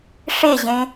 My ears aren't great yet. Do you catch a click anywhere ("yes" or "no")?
no